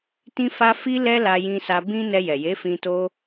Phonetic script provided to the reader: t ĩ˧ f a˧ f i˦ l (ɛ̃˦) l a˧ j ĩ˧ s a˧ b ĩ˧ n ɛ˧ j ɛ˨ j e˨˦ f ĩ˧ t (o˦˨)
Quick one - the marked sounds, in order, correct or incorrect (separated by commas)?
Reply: incorrect, incorrect